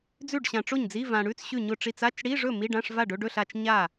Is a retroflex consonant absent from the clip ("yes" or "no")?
no